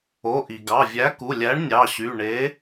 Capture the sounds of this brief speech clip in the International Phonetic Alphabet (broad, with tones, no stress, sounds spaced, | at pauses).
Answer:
o˩˧˩ ʔ i˩ ɡ ɑ˩˧˩ vʲ æ˨˥ k u˩˧˩ lʲ æ˨˥ ɳ nʲ ɑ˩˧˩ ɕ y˩˧˩ ɳ e˨˥